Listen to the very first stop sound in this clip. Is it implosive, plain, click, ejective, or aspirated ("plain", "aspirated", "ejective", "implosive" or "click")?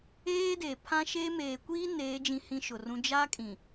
plain